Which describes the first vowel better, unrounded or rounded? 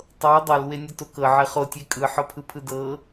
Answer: unrounded